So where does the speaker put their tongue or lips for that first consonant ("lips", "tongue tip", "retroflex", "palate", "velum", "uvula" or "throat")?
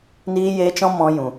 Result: tongue tip